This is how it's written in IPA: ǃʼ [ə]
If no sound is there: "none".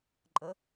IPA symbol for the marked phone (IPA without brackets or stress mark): ə